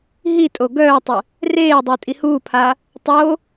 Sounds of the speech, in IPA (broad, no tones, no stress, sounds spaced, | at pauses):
ɦ i tʼ o ɡ œː tˤ ə | r eː dˤ u tʼ i h uː pʰ a | tˤ o